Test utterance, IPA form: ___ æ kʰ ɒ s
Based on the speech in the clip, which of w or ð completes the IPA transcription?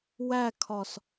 w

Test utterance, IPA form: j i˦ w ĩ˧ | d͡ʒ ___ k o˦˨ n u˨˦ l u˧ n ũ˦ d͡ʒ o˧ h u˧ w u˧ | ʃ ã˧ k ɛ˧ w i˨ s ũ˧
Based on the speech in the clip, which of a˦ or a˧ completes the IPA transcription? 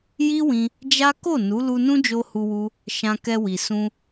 a˦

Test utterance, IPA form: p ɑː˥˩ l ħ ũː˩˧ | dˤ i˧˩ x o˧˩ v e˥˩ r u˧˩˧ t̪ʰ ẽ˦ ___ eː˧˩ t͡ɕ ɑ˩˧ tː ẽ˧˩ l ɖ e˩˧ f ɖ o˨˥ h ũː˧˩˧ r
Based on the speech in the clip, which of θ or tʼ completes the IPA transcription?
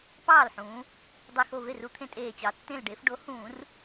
tʼ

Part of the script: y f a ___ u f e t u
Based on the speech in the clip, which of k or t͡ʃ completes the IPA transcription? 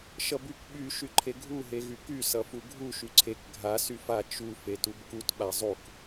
t͡ʃ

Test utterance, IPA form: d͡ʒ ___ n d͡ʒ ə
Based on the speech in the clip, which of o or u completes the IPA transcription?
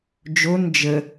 o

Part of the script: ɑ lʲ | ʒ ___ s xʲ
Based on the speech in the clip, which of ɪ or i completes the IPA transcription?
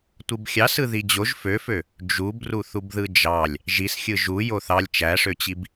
i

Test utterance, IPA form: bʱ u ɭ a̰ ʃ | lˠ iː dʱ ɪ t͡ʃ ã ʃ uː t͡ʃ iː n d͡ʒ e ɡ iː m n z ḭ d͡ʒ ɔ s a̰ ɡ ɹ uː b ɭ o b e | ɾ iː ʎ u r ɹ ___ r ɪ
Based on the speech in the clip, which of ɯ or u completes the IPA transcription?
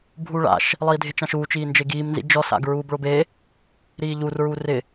u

